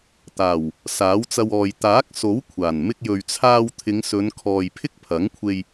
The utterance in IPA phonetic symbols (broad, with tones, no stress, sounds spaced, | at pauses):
t̪ aː˨˩ w | s aː˨˥ w t͡s ɐ˧ w ɔː˨ j t̪ aː˨˥ k̚ s o˨˥ w kʷʰ aː˨˩ n m ɪ˧ k̚ j ɵ˨ ɥ t͡sʰ aː˧ w t̪ʰ ɪ˨˧ ŋ s ɵ˨˧ n kʰ ɔː˨ j pʰ ɪ˥ k̚ pʰ ɐ˨˥ ŋ kʷʰ e˧ j